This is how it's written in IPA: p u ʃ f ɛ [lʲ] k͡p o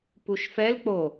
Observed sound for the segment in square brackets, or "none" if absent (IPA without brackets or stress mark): l